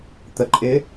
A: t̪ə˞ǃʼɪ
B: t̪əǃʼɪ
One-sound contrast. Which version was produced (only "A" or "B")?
B